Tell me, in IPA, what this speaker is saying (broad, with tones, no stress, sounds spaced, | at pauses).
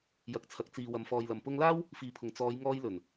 j ɐ˨ k̚ t͡sʰ ɐ˨ k̚ t͡s iː˨ w ɐ˨ m f ɔː˨ j l ɐ˨ m p ʊ˧ ŋ l aː˥ w | f iː˨ pʰ ʊ˨˩ ŋ t͡s ɔː˨˧ j ŋ ɔː˧ j l ɵ˨˩ n